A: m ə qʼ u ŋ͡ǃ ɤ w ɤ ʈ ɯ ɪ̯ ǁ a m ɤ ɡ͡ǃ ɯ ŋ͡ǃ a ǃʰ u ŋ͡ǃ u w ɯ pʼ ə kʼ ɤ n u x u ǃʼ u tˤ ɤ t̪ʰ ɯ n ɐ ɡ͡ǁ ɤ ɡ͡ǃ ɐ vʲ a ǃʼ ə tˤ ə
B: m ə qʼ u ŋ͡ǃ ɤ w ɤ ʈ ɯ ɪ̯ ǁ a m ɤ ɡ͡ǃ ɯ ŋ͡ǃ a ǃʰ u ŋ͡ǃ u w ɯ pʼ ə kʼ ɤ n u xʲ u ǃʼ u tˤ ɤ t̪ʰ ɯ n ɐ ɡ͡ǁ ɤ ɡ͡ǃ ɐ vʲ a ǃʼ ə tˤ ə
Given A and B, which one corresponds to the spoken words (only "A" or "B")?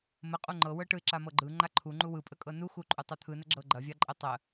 A